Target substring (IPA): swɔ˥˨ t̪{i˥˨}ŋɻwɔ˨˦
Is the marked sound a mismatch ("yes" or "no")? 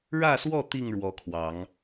no